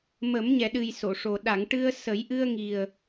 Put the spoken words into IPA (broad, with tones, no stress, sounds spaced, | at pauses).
m ə˨˩˦ m ɲ ɛ˨˩ ɗ ɨ˨˩ j s o˨˩˨ ʂ o˨˩ ɗ a˨˩˨ ŋ ʈ ɨ˧ ə̯ s ə˨˩˦ j ʔ ɨ˧ ə̯ ŋ i˨˩ ə̯